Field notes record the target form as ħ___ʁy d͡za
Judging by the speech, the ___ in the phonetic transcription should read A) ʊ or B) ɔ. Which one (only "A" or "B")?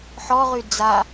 B